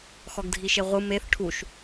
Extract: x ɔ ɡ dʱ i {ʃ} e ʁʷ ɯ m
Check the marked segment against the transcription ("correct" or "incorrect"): correct